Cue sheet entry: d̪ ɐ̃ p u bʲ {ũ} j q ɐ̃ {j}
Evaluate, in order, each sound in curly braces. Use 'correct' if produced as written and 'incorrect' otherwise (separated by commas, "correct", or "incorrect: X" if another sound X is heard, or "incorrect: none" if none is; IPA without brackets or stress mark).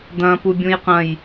correct, correct